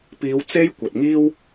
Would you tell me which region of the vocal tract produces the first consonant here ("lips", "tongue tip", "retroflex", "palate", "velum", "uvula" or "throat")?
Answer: lips